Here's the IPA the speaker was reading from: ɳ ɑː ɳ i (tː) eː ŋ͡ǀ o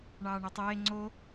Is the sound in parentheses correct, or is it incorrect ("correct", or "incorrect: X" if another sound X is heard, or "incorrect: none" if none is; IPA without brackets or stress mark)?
incorrect: tˤ